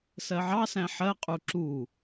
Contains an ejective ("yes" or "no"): yes